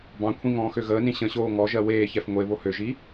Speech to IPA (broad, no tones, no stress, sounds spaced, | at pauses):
b ɑ̃ kʷʰ ĩ ŋ ɔ̃ː x ø ɣ əː n ĩ ɕ ə̃ ɕ oː ŋ ɔ ʒ ɜ w eː ç ɛ f ŋʷ e β o h ø ʒ i